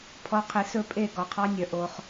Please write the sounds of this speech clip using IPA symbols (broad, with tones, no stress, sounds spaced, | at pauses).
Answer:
pʰ ɔ˨ qʰ i˨ s ɵ˦˨ pʼ e˦˨ ɡ ɔ˨ qʰ ɑ˦˥ nʲ œ˨ ʔ o˨ χ